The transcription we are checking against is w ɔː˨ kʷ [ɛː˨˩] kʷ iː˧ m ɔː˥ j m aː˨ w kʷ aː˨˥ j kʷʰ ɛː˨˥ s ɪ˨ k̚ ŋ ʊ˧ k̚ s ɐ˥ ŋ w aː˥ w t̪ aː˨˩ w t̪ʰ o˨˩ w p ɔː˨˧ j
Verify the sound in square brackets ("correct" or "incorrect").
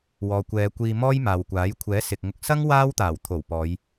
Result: incorrect